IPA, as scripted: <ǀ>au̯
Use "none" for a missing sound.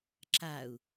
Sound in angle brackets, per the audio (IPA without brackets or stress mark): ǁ